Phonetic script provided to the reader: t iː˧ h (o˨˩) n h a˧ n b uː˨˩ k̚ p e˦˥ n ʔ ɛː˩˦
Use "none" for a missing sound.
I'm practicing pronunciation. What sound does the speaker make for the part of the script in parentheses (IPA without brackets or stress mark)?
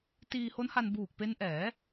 o˦˥